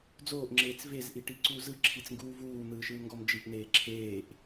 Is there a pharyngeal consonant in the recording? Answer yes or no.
no